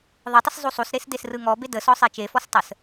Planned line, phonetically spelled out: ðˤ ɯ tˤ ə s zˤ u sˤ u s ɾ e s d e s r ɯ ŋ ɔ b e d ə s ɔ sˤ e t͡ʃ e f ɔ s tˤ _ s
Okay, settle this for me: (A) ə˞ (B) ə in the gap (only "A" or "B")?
B